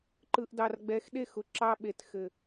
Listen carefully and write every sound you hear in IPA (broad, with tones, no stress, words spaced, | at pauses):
ǃɯ˨ʔdɑ˨rɡ͡bɛ˨˦xɗe˦˨x ʊ˨ǁɑ˦ ɓe˨txɘ˨